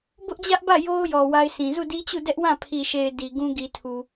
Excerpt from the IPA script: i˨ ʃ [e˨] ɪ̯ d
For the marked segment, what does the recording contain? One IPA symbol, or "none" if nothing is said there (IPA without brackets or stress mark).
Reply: e˨